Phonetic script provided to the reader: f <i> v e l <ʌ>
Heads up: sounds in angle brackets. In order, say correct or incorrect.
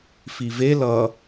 correct, correct

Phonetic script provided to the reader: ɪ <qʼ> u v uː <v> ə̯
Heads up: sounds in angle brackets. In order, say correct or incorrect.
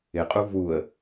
correct, incorrect

